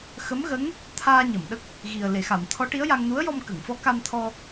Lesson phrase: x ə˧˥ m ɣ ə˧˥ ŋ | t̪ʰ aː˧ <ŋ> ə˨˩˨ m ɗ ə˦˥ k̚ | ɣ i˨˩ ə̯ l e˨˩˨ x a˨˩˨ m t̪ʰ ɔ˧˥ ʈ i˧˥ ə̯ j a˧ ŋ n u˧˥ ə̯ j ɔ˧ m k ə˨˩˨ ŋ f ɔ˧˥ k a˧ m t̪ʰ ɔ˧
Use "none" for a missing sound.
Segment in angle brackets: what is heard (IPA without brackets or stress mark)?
ɲ